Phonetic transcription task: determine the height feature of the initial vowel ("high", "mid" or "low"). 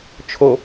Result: mid